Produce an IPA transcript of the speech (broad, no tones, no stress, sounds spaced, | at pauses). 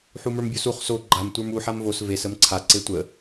ħ u m ə˞ m bʲ u s u χ s o ɡ͡ǃ a m tʷ ə˞ m u ħ a m v o s v e s ə m ǀʰ a ǀ e tʷ ə